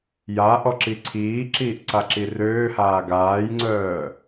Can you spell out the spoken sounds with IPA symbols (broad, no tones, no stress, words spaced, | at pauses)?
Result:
ja ʔɔǁiǀʰiːǁiːʔ ǀaǁirøːhaː ɡaːjŋ͡ǀœː